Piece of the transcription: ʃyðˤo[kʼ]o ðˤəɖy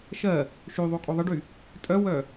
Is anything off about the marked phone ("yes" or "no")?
no